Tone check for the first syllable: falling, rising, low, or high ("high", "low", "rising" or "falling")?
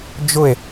falling